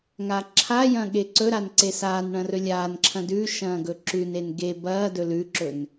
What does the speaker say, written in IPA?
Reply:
ŋ a ǁʰ a j ɐ̃ ɠ e ǀ ɵ ɾ a n ǀ e s aː n ɳ ɐ̃ r ɵ lʲ aː n ǁʰ ɐ̃ d ʉ ʃ ɐ̃ː ɡ ɵ ǁ ʉ n e n ɡ e b ɐː d ɵ l ʉ ǁ ɵ n

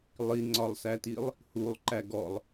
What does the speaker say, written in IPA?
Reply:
lˠ i ŋ͡ǀ ɒ lˠ s æ t i lˠ | h u lˠ ǃ æ ɡ ɔ lˠ

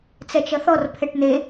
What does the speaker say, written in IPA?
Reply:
t͡s ɛ t͡ʃ ʌ θ ɔ r pʰ ɛ ʈ n̪ e

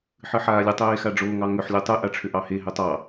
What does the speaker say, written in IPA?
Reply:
ħ ɨ ħ aː lʲ ɨ tˤ eː x a ɖ͡ʐ oː ŋ ɑ ŋ ʏ ħ lʲ o tˤ ɨ ʔ a ʈ͡ʂʰ ʏ ʔ ɑ h e ɦ ʏ tˤ ɑ

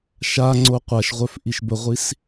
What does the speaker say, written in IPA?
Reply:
ʃ a ŋ͡ǀ o qʷ a ʃ ʁʷ œ f ʔ i ʃ b ə ʁʷ i s

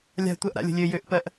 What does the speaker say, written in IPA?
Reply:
lʲ a̤ tʷ ɜ ʔ ɾ a̰ lʲ ə̤ lʲ ø j ø ʔ p ɜ ʔ

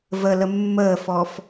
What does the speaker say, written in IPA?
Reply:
v ə l ə mː əː f ɔ f

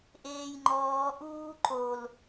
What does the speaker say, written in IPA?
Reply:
ʔ eː j ŋ͡ǃ ɔː ʔ uː ǃ o l

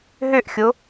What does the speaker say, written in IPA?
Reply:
ɦ ø ʔ xʲ o

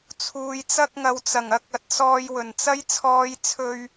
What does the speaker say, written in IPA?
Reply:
t͡sʰ uː˨ j t͡s ɐ˧ k̚ ŋ ɐ˨ w t͡s ɐ˨˩ ŋ ɐ˥ k̚ ɐ˨ t̚ s ɔː˧ j w ɵ˨˩ n t͡s ɐ˥ j t͡sʰ ɔː˧ j t͡sʰ ɵ˧ ɥ

